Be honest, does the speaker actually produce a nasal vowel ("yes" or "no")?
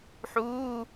no